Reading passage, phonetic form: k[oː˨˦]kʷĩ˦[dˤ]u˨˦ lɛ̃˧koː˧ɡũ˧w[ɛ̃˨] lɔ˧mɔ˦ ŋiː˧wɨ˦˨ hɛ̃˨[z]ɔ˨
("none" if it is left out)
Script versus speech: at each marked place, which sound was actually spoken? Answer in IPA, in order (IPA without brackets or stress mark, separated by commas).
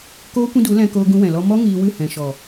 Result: oː˦, d, ɛ̃˨, ʃ